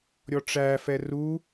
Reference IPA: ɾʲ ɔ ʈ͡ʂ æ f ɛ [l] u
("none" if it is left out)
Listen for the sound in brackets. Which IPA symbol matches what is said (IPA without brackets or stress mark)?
r